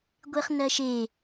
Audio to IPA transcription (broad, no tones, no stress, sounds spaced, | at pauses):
ɡʷ e χ n ɜ ʃ e